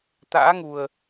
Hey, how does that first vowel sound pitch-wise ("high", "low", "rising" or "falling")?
rising